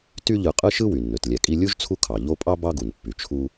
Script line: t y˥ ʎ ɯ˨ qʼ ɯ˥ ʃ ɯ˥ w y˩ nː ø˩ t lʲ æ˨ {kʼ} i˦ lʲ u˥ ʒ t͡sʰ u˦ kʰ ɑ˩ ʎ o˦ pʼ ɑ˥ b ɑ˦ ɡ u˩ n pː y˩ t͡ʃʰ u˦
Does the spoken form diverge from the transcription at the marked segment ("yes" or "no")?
no